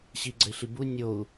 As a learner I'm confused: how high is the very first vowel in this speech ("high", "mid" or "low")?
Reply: high